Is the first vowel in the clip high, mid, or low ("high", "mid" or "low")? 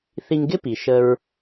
high